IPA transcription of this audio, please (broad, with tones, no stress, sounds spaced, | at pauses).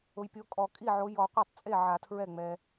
ʊ˨ j pʲ o˨˦ kʼ ɔ˨˩˦ kʼ i˥˩ ʕ o˨˦ j ɔ˨˩˦ qʷ a˥˩ tˤ t͡sʼ e˥˩ ʕ a˨˩˦ tʰ ɹ ɛ˥˩ ŋ͡m ɛ˨